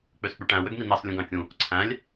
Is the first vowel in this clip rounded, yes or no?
yes